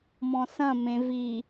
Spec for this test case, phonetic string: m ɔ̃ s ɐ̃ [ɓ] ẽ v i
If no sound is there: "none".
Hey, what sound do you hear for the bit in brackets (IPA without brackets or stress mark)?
m